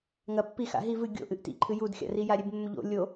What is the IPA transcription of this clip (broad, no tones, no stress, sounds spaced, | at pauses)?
ŋ ɐ pː i x a̰ ɦ i v ɨ ɡʲ o̰ ʔ ɨ ʔ t ḭ ǃʰ ɨ j u d xʲ a̰ r i j a ɾʲ e b mː ɵ ʎ o̰ lʲ o